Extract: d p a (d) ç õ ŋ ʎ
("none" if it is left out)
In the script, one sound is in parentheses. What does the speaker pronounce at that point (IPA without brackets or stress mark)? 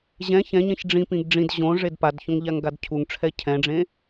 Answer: d